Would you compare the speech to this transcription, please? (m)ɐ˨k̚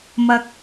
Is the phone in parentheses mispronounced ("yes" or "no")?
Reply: no